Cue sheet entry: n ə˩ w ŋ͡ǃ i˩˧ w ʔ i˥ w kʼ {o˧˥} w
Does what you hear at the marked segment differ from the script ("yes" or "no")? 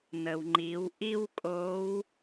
no